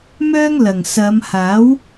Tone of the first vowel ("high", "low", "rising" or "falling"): high